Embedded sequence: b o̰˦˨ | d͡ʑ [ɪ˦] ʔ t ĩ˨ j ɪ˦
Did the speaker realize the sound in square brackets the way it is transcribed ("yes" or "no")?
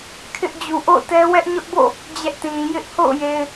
no